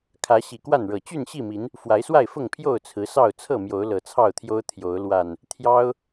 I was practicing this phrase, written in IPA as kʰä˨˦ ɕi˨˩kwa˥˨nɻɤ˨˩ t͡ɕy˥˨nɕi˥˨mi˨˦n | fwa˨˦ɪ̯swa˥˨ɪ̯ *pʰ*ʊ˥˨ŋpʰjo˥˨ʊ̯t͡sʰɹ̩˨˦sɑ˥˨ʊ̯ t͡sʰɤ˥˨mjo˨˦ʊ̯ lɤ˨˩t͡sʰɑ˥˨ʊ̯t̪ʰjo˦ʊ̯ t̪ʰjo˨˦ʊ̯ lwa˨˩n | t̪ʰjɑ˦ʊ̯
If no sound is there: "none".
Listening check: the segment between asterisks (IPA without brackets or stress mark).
f